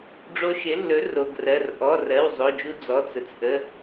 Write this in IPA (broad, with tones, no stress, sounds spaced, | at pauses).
ɖ͡ʐ o˧ ʃ ɪ˩˥ lː ɵ˩˥ r o˩˧˩ ɡ r ɜ˩˧˩ r ʔ ɔ˩˧˩ r ɜ˩˧˩ w zˤ o˩˧˩ d͡ʒ u˧ d͡z ɔ˩˧˩ t͡s ə˩˧˩ t͡s ʔ ə˩˧˩